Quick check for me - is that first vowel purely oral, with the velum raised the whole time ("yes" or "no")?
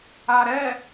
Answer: yes